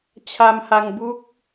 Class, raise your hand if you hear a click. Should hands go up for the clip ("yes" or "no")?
no